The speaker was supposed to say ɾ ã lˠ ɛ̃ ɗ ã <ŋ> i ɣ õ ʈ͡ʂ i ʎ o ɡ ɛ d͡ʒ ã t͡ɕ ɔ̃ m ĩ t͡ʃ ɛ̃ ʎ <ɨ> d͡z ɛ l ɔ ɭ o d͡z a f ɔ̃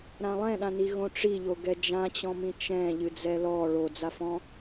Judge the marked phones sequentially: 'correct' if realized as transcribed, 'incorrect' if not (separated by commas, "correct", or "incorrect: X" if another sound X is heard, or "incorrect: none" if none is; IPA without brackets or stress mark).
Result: incorrect: n, correct